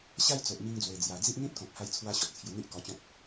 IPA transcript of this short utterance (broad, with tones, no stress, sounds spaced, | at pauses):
ɕ a˦ j t͡s o˨ ʔ m i˧ ŋ d͡z w e˨˩ d͡z j a˨˩ d͡z i˦ ʔ n̪ ĩ˦ t̚ k ɔ̃˨ k̚ h a˧ j t͡sʰ w a˧ ɕ ɔ˨ t̚ t͡sʰ j u˧ n̪ i˦ ʔ k ɔ˧ t͡ɕ ɔ̃˦ p̚